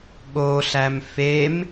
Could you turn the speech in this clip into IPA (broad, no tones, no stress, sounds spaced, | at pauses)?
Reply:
ɠ o ɬ æ m f e m